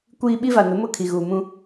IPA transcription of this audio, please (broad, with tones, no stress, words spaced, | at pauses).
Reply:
kʷiː˦ ɓi˦va˨nʊ˨˦mʊ˦˨ kʰi˨ɣuː˨mũ˦